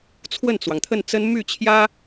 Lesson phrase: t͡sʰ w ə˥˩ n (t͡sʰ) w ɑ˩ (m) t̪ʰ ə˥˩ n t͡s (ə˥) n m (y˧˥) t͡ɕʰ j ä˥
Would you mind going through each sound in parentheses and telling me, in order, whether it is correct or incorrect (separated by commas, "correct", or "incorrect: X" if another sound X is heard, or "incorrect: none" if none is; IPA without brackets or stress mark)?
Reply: incorrect: t͡s, incorrect: ŋ, correct, incorrect: y˥˩